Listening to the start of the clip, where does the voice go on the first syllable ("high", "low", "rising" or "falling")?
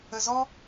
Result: low